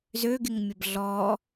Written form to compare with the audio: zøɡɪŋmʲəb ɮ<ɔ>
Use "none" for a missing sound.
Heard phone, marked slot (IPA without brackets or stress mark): ɔ